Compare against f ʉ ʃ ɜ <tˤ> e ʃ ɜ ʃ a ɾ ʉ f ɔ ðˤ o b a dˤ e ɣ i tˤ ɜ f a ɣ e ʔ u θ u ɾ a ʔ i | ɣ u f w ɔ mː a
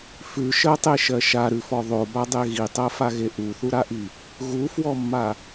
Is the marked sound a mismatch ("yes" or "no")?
no